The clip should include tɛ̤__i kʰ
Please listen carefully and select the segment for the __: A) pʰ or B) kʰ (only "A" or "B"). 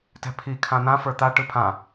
A